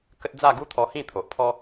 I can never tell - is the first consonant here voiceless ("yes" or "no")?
yes